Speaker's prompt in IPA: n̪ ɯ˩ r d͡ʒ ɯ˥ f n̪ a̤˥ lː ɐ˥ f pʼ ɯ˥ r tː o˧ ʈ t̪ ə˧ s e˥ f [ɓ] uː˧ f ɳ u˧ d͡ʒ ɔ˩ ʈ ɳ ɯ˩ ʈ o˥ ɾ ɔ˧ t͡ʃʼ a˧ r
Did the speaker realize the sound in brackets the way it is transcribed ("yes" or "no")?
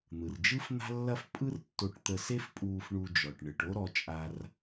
no